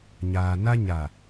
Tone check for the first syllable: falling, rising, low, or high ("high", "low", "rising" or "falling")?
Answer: low